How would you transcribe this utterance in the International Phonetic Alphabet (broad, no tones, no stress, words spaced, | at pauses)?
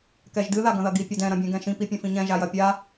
kɛʒdɨ ðaɡɐ̃ðɐɡi pʲɐdɛ̃ ɾɐ̃bʲɛ̃ɡɛ̃ʃĩ pipʲɐ̃fĩɲɛ̃ ʒajɐpʲa